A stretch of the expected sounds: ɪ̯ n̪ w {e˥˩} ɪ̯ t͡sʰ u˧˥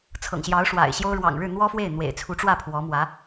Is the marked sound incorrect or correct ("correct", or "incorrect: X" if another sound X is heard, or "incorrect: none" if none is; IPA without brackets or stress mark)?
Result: incorrect: ḛ˨˩